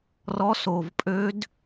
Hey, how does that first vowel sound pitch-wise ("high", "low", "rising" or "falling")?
rising